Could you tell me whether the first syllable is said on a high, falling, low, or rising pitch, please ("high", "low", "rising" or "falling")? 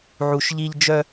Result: low